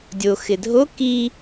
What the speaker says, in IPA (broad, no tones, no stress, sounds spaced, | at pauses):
dʲ o x ɪ dʱ o k i